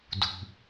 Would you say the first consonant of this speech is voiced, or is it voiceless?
voiced